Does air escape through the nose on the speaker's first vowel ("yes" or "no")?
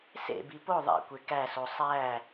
no